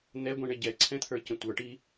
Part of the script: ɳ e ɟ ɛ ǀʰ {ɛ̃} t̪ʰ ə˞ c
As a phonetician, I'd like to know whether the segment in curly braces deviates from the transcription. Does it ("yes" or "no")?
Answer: no